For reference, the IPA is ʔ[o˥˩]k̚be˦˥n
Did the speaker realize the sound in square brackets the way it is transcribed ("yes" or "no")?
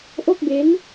yes